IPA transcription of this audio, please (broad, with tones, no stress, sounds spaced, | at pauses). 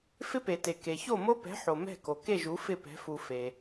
f ɪ˦ p e˨ t e˨ k e˨ ç o˥˨ m o˦ p ɛ̤˨˥ ħ o˨ m ɛ̤˥˨ k o˨ k e˥˨ ʒ u˨˥ f ɪ˥˨ p ɛ̤˨˥ f u˨ f e˨